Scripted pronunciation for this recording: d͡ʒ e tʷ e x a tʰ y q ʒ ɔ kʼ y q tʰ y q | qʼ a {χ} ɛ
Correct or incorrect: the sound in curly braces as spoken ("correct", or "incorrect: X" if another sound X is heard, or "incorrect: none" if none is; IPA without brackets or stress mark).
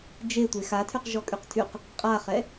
correct